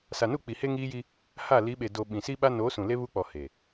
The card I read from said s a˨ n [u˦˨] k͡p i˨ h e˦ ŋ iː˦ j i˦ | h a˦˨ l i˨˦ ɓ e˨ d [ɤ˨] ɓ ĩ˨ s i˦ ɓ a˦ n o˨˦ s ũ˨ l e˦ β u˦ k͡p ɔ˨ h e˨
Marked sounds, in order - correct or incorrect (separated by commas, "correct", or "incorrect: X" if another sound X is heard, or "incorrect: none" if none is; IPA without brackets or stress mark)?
correct, incorrect: o˨